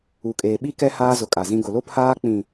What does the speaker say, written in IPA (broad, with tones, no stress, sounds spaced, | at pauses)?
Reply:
u˨ kʼ eː˨ ɓ i˦ k ɛ˦ h aː˦ z ʊ˨ kʼ a˨ z ĩ˦ ɡ ʊ˨ l o˦ pʰ aː˦ k͡p ĩ˨